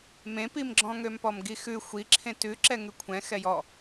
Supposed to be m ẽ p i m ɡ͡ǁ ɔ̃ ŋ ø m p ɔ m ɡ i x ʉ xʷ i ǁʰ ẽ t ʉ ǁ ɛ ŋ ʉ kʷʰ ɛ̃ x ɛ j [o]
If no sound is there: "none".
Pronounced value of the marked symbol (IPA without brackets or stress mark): ɔ